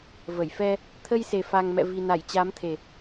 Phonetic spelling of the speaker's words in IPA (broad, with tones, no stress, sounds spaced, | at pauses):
v ə˧˩ j f ɛ˧ | t̪ʰ ə˧ j s e˨˩ f a˨˩ ŋ m ɛ̰˧˨ v i˨˩ n a˧˩ j t͡ɕ a˨˦ m t̪ʰ e˨˩